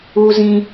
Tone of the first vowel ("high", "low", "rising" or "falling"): high